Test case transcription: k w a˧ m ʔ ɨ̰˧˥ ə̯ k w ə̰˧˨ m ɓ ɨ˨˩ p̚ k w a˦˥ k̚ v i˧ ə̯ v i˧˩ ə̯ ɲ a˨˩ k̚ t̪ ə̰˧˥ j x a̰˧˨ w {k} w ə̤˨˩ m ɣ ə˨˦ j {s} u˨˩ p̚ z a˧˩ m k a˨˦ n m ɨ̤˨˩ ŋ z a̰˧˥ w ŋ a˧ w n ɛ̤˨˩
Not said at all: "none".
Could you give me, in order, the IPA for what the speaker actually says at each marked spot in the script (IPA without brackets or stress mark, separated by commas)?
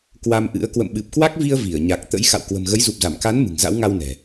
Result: k, z